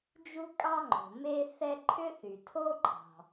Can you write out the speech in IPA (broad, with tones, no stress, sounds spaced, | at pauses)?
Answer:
d͡ʒ u˥ kʼ ɑ˥ ŋ͡ǃ o̤˩ m e˥ θ ɛ˥ ǃʰ ʏ˥ θ y˩ tʰ o˥ ǃʰ ɑ̤˩